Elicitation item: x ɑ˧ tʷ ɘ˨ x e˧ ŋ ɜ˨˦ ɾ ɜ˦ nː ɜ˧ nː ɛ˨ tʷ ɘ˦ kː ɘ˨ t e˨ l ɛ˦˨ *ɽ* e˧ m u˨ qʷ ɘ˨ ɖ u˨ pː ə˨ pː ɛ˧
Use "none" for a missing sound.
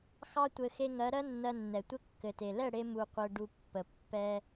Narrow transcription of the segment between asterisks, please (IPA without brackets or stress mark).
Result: ɽ